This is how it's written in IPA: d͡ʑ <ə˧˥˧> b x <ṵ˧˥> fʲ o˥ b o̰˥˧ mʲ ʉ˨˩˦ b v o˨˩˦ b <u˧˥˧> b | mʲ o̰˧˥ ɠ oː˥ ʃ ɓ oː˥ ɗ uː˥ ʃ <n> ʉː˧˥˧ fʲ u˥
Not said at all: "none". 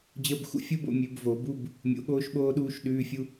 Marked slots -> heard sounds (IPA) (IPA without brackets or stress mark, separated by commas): ə˧˥˧, ṵ˥, u˧˥˧, ɗ